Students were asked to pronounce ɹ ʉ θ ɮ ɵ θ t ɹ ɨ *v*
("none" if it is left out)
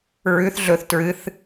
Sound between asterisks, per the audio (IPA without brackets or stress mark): θ